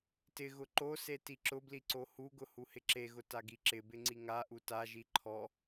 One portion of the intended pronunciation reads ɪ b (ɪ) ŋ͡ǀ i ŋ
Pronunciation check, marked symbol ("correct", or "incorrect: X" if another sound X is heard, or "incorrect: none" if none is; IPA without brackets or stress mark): correct